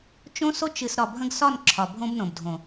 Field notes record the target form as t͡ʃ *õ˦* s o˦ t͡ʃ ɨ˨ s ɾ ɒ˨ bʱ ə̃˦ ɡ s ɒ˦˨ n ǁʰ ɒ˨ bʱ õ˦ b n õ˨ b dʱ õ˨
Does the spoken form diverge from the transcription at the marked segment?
no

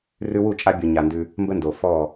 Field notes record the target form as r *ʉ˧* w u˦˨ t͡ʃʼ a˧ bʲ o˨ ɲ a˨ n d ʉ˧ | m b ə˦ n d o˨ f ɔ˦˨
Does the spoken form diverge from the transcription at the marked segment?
no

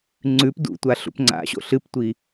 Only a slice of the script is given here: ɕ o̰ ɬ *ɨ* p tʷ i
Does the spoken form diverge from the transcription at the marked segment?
no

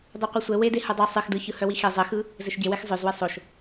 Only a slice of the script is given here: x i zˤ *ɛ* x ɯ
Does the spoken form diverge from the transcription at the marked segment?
yes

